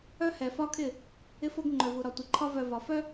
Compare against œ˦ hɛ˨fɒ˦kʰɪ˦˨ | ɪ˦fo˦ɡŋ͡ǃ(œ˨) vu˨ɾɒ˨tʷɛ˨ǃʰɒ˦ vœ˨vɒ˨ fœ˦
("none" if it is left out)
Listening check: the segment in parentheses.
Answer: œ˨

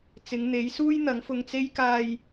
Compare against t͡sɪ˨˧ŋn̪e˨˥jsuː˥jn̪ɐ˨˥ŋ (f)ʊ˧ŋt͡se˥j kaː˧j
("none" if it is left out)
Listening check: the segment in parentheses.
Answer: f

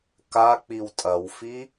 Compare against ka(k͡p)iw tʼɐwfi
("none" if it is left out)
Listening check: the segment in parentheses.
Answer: k͡p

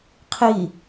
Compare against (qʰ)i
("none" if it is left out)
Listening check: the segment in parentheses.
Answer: qʰ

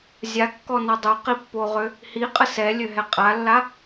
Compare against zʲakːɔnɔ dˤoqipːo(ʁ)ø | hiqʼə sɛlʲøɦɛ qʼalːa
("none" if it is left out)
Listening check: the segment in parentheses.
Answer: ʁ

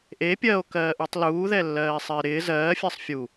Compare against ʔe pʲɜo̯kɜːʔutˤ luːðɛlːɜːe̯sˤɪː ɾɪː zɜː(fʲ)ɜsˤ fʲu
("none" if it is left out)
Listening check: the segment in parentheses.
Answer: fʲ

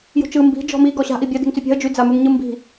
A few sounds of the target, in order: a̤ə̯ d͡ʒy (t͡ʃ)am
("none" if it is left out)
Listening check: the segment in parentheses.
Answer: d͡z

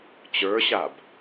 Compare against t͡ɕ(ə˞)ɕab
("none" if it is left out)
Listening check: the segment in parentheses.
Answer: ə˞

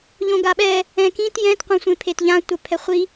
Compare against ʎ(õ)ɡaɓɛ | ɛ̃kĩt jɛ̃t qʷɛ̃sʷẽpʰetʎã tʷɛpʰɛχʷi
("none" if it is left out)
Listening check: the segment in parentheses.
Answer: õ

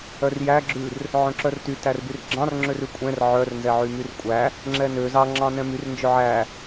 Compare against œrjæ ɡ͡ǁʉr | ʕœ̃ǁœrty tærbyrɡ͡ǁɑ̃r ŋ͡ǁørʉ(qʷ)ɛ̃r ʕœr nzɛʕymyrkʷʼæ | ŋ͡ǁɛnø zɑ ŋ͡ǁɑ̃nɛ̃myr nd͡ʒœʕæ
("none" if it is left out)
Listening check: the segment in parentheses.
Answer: kʷʼ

